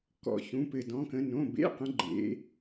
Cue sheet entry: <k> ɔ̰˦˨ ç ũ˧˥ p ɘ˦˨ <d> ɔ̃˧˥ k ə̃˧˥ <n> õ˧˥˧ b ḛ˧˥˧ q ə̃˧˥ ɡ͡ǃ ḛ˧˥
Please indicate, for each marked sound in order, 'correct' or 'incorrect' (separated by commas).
correct, correct, correct